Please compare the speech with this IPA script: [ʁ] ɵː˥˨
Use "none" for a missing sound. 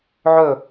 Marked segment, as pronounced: ʕ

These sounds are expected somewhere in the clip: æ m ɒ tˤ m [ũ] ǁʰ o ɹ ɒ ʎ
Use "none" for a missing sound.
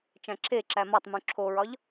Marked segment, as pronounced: ũ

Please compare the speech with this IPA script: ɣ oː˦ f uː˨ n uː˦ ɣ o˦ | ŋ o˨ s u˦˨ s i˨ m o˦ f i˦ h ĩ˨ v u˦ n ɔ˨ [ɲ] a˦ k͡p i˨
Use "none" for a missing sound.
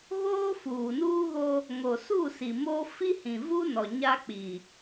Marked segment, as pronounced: ɲ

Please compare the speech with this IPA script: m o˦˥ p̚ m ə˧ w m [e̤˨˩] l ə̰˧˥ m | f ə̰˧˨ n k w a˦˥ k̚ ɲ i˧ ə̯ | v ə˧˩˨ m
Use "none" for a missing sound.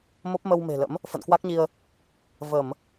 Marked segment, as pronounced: e̤˨˩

